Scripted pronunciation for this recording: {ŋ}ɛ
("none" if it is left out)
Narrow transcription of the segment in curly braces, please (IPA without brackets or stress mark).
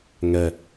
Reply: ŋ